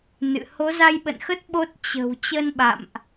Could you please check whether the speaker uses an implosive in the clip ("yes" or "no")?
yes